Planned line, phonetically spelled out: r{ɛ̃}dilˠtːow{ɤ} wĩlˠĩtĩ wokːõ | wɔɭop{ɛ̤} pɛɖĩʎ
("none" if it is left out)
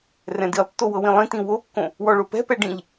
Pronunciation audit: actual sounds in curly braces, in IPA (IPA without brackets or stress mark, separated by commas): ɛ̃, ɤ, ɛ̤